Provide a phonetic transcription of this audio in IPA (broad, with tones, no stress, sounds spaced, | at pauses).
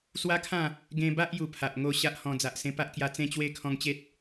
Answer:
s w a˦ kʰ ã˥˧ | ɡ ẽ˧ b a˦ ʔ j u˧ pʰ a˨ ʔ ŋ o˥˧ ɕ a˦ ʔ h ɔ̃˧ d͡z a˨ ʔ s ẽ˧ p a˦ ʔ k j a˧ t͡s ẽ˦ t͡ɕ w e˦ kʰ ɔ̃˧ ŋ t͡ɕ e˦ t̚